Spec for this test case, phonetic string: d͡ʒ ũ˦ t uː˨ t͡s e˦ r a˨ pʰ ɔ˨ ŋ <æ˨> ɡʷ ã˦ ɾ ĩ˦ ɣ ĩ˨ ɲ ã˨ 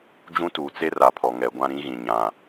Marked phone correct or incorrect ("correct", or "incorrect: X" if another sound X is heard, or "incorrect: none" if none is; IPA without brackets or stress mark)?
incorrect: ɛ˨